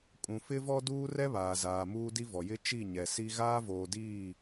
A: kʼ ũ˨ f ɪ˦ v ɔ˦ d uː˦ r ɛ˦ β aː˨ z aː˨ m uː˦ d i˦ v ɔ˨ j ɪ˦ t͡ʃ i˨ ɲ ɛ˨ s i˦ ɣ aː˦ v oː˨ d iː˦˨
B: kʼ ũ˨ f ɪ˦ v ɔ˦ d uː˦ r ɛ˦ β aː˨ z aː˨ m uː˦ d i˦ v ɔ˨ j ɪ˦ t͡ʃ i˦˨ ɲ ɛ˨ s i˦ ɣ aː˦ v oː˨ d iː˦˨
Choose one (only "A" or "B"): B